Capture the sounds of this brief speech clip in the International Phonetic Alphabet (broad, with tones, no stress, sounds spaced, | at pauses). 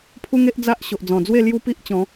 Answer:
pʰ u˦ ŋ e˦ ʔ d͡z a˦ ʔ ɕ o˨ ʔ d͡z ɔ̃˨˩ d͡z w e˥˧ l j u˦ p i˦ ʔ t͡ɕ ɔ̃˨˦